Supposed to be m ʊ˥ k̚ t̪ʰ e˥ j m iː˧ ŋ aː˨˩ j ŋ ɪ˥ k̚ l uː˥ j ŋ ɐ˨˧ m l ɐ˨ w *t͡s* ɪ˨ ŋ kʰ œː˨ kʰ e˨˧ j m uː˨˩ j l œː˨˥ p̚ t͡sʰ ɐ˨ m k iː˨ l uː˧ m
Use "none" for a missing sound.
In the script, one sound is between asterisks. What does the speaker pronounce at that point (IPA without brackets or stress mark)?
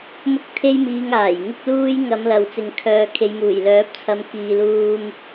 t͡s